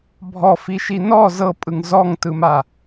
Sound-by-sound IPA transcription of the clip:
bʱ ɔ f i ʃ i n ɔ z ɤ pʼ ɯ ŋ z ɔ ŋ t ɯ m a

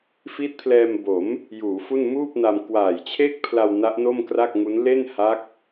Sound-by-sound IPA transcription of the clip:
f i˦˥ t̚ pʰ l ɛː˧ m b o˩˦ m | j uː˩˦ f u˥˩ n m uː˥˩ p̚ n a˧ m k w aː˨˩ j t͡ɕʰ e˥˩ k̚ pʰ l a˧ w n a˦˥ ʔ n o˥˩ m k r a˥˩ k̚ ŋ u˦˥ n l e˥˩ n h a˦˥ k̚

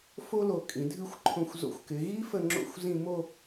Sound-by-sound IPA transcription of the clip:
f o˥ l o˧˩ kʼ ĩ˩˧ dʱ ɨ˥˧ xʷ ǃʰ õ˧ xʷ z o̰˧ xʷ k ɪ˩˧ ɣ i˥ f ə˥˧ ŋ͡ǁ o̰˥˧ xʷ z ĩ˥˧ m o˥˧

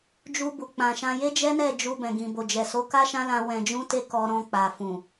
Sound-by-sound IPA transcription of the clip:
d͡ʒ u˧ b u˨ k͡p ã˨ ʃ ã˧ j e˦ d͡ʒ ɛ˦ n ɛ˦˨ d͡ʒ u˧ b ɛ̃˨ ɡ ĩ˨ b o˨ d͡ʒ ɛ˨ s o˨˦ k a˦ ʃ ã˦ l ã˧ w ɛ̃˧ d͡ʒ ũ˦ t e˦ k ɔ˧ ɾ ɔ̃˧ k͡p a˨ f ũ˨

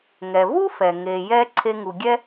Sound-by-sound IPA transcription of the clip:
ŋ ɛ˩ v u˥ f ɛ˩ ŋ e˩ j ɛ˧ ǀʰ e˧ ŋ u˩ ɡʲ ɛ˥

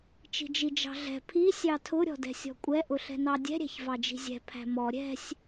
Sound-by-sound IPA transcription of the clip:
t͡ʃ i̤ d͡ʒ i d͡ʒ ɑ̤ ɮ ɛ̤ pʰ i sʲ ɑ tʰ ʊ ɾʲ ɔ̤ d ɛ̤ sʲ ɔ̤ kʷʼ ɛ ʔ ʊ ɬ ɛ̤ n ɑ dʲ ɛ̤ ɾʲ æ̤ ç v ɑ d͡ʒ i̤ zʲ ɛ̤ pʰ æ̤ m ɔ ɾʲ ɛ̤ sʲ

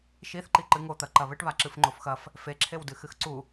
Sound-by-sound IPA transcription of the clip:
ʃ i θ ǃ i ǃ ɨ ŋ o t̪ ɐ ǃ ɐ β ɘ ʈ β a ǁ ɨ f ŋ͡ǃ o f x ɐ f | f e ǁʰ e w d ɨ x ɨ x ǀ u

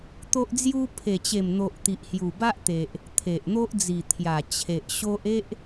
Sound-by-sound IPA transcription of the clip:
t̪ o˦ ʔ d͡z j u˦ pʰ e˨˩ t͡ɕ e˨˩ m n̪ o˨ ʔ t̪ i˨ ʔ h j u˨˩ b a˦ ʔ t̪ e˨ ʔ | t̪ʰ e˨ ʔ n̪ o˦ ʔ d͡z i˨˩ t̪ʰ j a˨˩ t͡ɕʰ e˨ ʔ ɕ o˦ ʔ e˦ ʔ

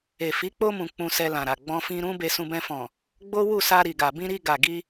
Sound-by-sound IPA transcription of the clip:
e˨ f i˨˦ k͡p o˧ m ũ˨ k͡p ũ˧ s ɛ˧ l ã˨ ɾ a˨ ɡ͡b ɔ̃˧ f ĩ˧ ɾ ũ˦ b e˧ s ũ˧ b ɛ̃˧ f ɔ̃˨ | ɡ͡b o˦ w u˦˨ s a˧ ɾ i˨ ɡ a˨ b ĩ˧ ɾ i˧ ɡ a˨ ɡ i˧

